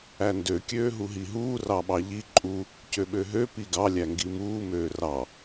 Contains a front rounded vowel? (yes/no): yes